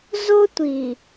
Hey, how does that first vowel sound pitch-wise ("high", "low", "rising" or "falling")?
high